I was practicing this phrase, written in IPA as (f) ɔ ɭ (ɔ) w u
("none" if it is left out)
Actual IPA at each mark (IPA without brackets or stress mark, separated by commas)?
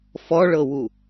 f, ɤ